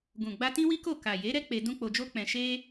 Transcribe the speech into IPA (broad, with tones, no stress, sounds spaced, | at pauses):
ɡ ũ˨ ɡ͡b a˧ t ĩ˦ w i˦ k o˦˨ k a˨ j e˨˦ ɾ ɛ˦ k͡p e˧ d ũ˦ k͡p o˧ d͡ʒ o˦ k͡p ɛ̃˧ ʃ e˦